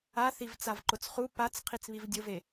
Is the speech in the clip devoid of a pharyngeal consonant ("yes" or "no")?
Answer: yes